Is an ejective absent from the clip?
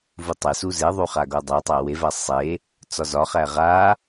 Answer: yes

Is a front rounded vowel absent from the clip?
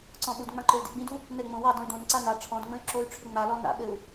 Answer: no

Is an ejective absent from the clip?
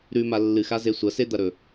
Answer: yes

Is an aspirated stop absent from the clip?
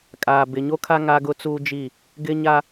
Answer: no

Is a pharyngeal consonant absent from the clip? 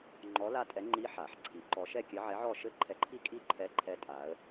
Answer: no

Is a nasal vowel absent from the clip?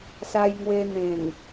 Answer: no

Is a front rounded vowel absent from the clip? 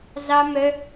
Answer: no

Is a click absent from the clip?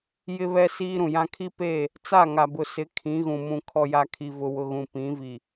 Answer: yes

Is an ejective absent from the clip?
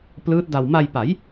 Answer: yes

